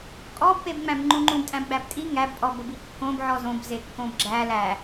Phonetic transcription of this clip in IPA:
kʼɔbpebŋ͡mæ̃b ŋ͡ǃũŋ͡ǃũbtʼæ̃b ɡ͡bæbtʼi ŋæb pʼɔbəbi kːõb ʕɔzõbze kːõbɡ͡ǁæ læ

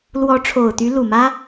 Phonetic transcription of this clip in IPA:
lwɔ˧˥ʈ͡ʂʰo˨˩ʊ̯t̪y˧˥ lu˨˩mä˥

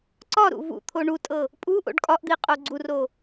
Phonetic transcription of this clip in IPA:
ǀɒɾṵ vṵ t̪ʰoɳutʼɤ | pʼu ʔo̰ɖkʼɒʔd̪i qʼoɡ͡ǀuro

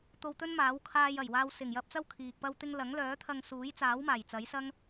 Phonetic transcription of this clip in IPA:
t̪o˧wt̪ɵ˥nmaː˨˥w kʰaː˧jɐ˨˩jwaː˧w sɪ˨˩ŋjɐ˧p̚t͡sɐ˥w kʰiː˨k̚pɐ˥wt̪ɪ˥ŋ lɐ˨˥ŋlœː˨˥t̪ʰɐ˧ŋ suː˨˥jt͡saː˨˥w maː˨˩jt͡sɐ˨˥jsɐ˥ŋ

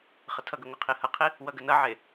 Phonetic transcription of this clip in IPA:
χətʰʌɡə ŋʷʌqʰihʌqʰi | wʌɡənʌʕe

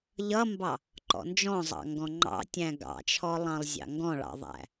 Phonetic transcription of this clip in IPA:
ʎʌmbɑ | ǃɔ̰nd͡ʒɔ̃zˤɑ̰ ŋɡɔ̃ŋ͡ǃɑ̰tʲæ̃ ɡɑ̰t͡ʃʰɔlˠɑ̃lˠzʲɑ̰ ŋɡɔ̃ɭɑ̰ðˤæ̰

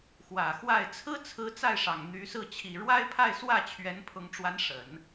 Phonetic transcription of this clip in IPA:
xwä˨˩ xwa˥˩ɪ̯ t͡sʰɹ̩˥t͡sʰɹ̩˧˥ t͡sa˥˩ɪ̯ʂɑ˨˩ŋ n̪y˧˥sɹ̩˥˩ t͡ɕʰi˨˩ɻwa˥ɪ̯pʰa˥˧ɪ̯swä˥˩ t͡ɕʰɥɛ˧˥npʰʊ˧˥ŋʈ͡ʂwa˧˥n ʂə˨˩˦n

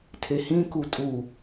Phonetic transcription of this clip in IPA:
tʰehĩku tʼu

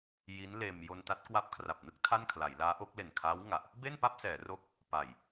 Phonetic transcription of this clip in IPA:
ji˦˥nleː˧m jo˧nta˦˥t̚kwa˦˥p̚ kʰra˨˩p̚nɯ˥˩k̚ tʰa˥˩nkʰla˩˦jlaː˦˥ʔo˦˥k̚ le˨˩nkʰaː˦˥wŋa˨˩ʔ | be˥˩npa˥˩p̚sɛː˩˦ ro˦˥k̚ | pa˨˩j

